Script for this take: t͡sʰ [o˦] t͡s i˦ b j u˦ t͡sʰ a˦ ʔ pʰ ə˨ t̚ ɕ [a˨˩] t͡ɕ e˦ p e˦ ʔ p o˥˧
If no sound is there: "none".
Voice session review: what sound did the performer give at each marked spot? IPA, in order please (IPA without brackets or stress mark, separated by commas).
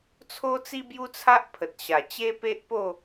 o˦, a˨˩